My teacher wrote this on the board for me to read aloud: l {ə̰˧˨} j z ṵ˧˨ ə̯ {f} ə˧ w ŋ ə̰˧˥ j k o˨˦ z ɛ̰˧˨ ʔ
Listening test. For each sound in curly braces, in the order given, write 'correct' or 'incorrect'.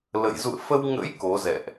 correct, correct

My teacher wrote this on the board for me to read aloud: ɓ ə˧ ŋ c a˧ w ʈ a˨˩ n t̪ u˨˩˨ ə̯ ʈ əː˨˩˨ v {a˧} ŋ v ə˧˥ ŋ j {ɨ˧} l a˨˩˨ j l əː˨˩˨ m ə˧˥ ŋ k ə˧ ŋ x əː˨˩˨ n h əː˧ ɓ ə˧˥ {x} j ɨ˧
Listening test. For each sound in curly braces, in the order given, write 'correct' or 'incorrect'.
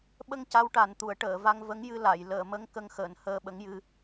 correct, correct, incorrect

